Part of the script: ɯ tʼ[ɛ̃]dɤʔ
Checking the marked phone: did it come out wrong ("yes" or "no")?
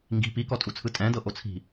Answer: no